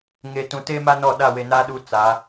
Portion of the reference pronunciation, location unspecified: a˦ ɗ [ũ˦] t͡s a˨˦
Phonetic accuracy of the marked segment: incorrect: u˦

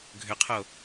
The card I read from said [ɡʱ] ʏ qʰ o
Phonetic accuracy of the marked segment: correct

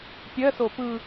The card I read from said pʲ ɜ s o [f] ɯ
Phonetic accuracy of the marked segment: incorrect: p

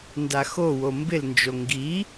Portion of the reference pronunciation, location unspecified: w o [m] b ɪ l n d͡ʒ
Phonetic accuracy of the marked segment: correct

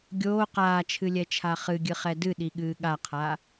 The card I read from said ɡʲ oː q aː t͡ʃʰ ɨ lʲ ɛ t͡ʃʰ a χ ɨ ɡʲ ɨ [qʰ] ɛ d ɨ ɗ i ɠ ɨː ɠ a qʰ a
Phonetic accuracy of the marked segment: incorrect: χ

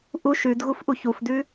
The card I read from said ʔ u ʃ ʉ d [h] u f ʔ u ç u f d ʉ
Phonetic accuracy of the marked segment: incorrect: ɣ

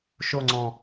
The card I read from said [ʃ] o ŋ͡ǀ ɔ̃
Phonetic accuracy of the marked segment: correct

